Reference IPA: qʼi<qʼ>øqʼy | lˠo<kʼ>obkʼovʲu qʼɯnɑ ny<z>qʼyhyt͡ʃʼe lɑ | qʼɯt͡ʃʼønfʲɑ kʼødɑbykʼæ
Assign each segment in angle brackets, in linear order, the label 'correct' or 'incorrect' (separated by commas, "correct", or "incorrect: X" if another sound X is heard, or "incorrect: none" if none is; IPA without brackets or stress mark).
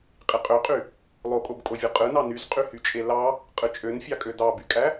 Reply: correct, correct, correct